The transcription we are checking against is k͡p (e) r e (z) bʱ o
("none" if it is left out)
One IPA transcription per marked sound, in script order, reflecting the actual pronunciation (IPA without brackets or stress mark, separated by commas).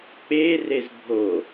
e, z